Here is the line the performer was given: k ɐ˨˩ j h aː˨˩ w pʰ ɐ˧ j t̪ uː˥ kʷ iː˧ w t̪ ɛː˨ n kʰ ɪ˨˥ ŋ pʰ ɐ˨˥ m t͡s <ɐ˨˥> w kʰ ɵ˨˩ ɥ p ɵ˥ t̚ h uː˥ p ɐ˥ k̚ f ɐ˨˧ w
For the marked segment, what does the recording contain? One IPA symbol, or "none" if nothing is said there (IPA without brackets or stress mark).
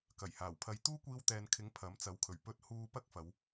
ɐ˨˥